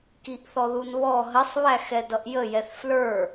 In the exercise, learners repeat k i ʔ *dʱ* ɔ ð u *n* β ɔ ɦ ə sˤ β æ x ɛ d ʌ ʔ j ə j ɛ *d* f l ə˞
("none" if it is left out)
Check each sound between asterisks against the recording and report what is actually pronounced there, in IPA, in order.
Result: θ, n, θ

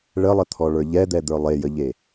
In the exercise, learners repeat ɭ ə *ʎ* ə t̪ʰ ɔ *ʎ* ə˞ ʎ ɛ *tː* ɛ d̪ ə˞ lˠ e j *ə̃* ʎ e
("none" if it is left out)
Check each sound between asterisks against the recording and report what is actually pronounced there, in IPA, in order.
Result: lˠ, ɭ, d̪, ə

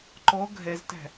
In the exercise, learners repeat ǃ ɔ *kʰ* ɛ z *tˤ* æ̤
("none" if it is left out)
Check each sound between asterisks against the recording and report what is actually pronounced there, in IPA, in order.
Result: ɡʱ, t

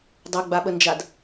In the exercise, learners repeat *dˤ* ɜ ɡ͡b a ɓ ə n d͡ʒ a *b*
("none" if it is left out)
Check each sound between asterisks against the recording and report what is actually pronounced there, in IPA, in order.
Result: dˤ, d

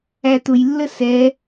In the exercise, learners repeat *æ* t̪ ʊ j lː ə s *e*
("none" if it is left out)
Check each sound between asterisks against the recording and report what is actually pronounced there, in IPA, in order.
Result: æ, ɛ

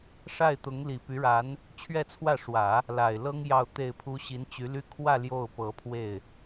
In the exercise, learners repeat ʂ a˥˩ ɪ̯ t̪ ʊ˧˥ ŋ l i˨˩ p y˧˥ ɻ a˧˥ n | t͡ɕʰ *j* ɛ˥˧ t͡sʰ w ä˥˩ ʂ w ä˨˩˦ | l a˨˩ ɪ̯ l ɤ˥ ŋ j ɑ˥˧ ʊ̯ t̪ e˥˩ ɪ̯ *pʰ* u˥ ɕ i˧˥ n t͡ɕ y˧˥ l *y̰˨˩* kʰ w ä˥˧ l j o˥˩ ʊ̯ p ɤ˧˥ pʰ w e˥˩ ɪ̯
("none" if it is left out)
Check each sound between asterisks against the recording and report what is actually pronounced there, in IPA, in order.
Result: ɥ, pʰ, y˥

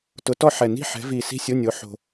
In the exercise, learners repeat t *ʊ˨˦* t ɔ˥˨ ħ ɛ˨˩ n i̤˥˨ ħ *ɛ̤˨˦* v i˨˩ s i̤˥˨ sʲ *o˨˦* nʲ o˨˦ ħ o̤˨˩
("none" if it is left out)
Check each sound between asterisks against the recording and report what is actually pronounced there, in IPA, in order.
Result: ʊ˨˦, ɛ̤˨˦, o˧˥˧

